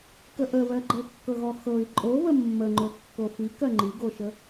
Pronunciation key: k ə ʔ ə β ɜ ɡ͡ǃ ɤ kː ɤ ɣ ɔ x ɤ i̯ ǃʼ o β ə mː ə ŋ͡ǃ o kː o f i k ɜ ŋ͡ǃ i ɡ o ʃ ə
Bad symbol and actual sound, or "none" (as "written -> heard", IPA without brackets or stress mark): none